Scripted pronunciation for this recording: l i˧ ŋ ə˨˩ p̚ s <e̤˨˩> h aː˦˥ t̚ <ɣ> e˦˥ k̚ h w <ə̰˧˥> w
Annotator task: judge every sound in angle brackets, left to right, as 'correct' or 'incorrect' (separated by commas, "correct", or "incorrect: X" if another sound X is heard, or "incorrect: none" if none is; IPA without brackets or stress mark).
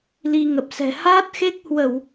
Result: incorrect: ɛ̤˨˩, incorrect: x, incorrect: ə˧˩˨